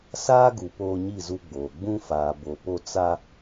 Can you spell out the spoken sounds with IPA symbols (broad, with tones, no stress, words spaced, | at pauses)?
saː˦ɡu˨ poː˦ɲi˦˨zu˦ɡ͡boː˨ ɡ͡bũ˦faː˨ bo˨po˦ t͡sa˦